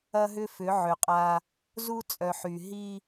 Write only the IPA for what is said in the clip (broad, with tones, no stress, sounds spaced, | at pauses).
ɐ˦ ɦ ʏ˦ f ʏ˨˦ ʕ ʏ˨ qʼ a˦ | z u˦ t͡sʼ œ˨ ħ y˨ ɦ i˦